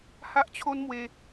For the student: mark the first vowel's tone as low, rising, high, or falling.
high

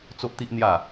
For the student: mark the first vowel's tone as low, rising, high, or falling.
high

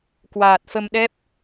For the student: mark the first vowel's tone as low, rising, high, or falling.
low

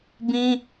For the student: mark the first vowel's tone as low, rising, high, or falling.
high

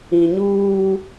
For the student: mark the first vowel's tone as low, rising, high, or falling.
low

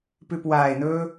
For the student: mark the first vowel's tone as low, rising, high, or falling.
low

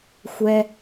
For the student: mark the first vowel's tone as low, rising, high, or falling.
high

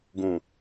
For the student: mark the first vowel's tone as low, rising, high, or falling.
low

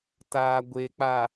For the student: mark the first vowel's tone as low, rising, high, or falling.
low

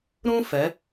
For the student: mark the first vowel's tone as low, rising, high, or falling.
high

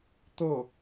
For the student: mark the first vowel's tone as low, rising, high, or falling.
falling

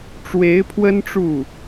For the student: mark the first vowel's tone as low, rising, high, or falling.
rising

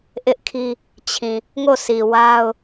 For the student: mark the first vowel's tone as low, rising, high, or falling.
high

